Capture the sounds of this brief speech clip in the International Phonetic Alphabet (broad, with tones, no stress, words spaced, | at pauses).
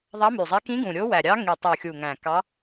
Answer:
ðˤɑ˧˥my˨˩zˤe˧˥ kĩ˧˥ɡũ˨˩ ɾʲo˧˥wæ˨˩ɾʲɑ˧˥ ŋi˨˩tˤu˨˩xʲu˨˩ŋæ̃˨˩ kɑ˧˥